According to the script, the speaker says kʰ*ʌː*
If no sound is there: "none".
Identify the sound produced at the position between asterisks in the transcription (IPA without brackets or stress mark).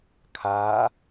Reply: aː